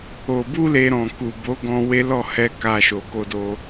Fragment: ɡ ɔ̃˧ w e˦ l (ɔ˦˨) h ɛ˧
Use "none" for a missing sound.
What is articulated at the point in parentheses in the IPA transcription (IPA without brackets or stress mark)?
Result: ɔ˦˨